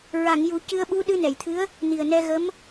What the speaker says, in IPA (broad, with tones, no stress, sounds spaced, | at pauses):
ɹ a˨˩˨ ŋ j u˨˩˦ c ɨ˧ ə̯ ɓ u˧˥ ɗ ɨ˧ n ɛ˨˩˨ j t̪ʰ ɨ˧˥ ə̯ | n i˨˩ ə̯ n ɛ˧ ɣ ə˧˥ m